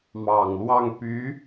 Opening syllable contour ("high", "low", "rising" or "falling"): low